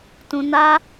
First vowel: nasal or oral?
nasal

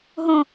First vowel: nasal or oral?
nasal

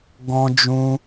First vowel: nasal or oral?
nasal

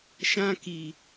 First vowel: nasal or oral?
nasal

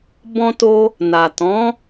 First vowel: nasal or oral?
nasal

